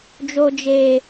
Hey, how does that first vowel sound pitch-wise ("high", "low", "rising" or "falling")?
high